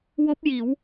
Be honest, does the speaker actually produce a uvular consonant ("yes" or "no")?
no